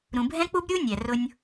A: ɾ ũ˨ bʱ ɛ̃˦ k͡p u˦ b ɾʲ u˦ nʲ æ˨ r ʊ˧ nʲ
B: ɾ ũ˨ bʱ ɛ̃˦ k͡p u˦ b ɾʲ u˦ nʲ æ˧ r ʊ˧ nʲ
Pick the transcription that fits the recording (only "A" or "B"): A